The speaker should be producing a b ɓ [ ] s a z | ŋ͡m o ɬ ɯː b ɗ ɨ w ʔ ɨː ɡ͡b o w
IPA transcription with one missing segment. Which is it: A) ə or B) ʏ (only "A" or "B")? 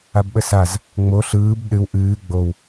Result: A